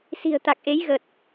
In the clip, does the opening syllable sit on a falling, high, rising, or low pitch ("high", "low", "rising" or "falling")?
low